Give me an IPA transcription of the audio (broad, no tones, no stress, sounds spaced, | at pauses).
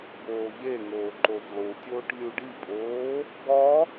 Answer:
b oː ʎ e ŋ oː ǃ o v lˠ u tʲ oː ʈ lʲ u ɖ i pʼ oː | ɡ ɒ